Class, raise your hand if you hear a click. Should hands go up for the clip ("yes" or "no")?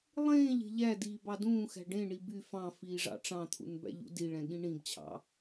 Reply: no